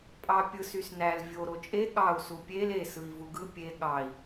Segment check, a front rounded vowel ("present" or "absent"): present